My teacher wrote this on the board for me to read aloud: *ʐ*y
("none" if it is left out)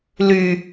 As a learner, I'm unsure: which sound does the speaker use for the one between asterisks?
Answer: l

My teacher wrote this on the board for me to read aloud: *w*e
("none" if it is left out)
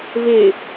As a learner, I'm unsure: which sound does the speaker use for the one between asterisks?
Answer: v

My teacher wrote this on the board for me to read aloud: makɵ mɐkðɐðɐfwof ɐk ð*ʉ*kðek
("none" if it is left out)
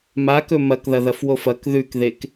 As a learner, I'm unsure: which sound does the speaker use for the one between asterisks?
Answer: ʉ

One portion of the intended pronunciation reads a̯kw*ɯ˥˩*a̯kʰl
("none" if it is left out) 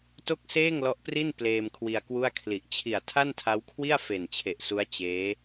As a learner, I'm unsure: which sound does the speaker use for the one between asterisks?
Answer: u˥˩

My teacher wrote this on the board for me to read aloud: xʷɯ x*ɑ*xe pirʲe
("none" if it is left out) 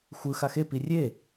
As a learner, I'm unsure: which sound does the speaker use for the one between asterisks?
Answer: a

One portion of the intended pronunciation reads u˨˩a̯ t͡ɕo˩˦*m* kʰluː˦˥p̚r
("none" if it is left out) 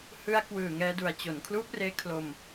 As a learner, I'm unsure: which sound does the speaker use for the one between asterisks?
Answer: n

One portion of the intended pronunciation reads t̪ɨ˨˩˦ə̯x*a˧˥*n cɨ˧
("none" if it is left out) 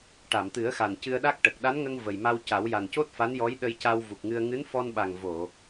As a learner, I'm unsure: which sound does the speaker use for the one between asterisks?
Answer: a˨˩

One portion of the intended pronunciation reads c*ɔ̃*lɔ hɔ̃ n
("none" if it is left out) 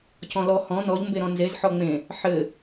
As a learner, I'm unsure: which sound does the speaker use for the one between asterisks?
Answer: ɔ̃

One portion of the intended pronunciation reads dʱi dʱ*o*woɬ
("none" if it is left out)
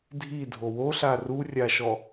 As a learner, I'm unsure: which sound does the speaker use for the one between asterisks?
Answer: o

